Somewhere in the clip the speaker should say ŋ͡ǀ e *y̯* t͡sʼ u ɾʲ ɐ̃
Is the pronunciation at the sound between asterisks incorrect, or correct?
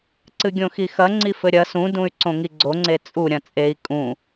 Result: incorrect: none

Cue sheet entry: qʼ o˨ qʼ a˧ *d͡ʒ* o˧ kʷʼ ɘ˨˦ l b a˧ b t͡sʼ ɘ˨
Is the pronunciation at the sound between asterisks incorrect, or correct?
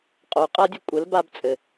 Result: incorrect: dʲ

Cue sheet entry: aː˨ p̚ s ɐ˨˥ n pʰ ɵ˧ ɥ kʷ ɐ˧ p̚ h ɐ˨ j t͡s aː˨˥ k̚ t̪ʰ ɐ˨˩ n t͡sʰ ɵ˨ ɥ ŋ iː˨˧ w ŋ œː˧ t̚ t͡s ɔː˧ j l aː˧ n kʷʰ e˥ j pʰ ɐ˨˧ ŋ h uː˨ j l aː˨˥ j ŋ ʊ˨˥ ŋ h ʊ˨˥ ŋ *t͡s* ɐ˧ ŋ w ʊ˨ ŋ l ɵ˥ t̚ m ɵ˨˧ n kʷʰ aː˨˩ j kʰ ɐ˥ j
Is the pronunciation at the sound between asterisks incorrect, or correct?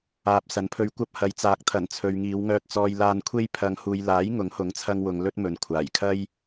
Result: incorrect: t͡sʰ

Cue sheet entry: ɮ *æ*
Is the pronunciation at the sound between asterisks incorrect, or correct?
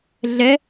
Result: incorrect: ɛ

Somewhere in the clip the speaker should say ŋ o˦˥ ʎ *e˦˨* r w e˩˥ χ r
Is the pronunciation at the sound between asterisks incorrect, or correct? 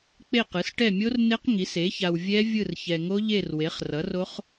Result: correct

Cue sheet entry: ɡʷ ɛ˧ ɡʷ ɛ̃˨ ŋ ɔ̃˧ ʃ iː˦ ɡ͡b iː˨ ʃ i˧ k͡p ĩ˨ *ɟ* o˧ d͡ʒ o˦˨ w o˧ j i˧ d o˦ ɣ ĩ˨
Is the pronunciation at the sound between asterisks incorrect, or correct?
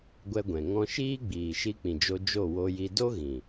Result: incorrect: d͡ʒ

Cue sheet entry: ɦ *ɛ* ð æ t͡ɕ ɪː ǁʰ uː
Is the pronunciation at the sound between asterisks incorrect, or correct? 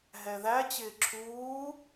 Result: correct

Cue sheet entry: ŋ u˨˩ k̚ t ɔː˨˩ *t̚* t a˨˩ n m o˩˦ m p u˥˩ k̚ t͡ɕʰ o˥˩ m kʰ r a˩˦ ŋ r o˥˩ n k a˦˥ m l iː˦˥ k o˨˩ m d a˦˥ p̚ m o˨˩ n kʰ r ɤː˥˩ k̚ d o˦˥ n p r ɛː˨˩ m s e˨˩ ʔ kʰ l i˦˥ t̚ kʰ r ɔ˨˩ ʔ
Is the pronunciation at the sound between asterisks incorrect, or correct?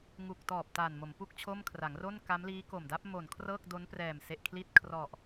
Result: incorrect: p̚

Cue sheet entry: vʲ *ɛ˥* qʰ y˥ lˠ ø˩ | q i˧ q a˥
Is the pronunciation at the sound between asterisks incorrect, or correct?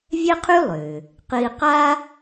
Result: correct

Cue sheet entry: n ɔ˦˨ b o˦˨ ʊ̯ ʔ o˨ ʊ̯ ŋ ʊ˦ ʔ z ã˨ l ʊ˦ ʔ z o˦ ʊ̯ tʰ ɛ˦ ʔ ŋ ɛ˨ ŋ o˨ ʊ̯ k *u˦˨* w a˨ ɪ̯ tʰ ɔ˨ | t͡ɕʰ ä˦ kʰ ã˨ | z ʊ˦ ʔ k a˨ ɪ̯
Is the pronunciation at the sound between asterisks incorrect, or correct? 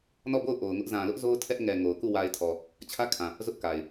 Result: correct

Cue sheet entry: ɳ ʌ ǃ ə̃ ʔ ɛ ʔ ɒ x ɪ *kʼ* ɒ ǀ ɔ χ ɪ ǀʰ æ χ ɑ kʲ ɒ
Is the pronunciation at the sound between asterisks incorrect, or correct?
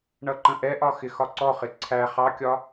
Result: incorrect: x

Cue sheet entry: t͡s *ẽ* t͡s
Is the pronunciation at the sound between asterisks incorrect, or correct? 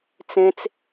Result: correct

